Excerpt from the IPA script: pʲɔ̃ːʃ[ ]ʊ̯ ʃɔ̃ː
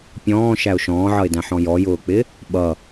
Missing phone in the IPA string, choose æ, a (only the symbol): æ